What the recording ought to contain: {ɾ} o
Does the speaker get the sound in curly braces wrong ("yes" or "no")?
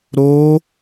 no